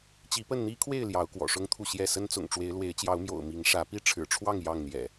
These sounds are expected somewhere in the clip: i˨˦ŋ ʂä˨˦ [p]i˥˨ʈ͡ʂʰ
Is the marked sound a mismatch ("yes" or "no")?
no